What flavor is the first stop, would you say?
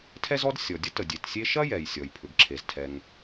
aspirated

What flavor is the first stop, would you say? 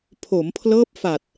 aspirated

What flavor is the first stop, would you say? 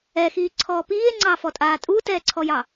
click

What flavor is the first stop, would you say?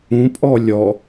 ejective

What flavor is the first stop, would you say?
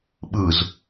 implosive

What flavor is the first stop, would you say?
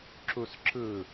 click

